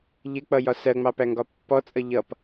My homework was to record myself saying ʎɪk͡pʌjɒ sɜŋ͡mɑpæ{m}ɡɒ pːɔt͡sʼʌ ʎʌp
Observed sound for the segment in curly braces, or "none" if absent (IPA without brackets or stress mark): ŋ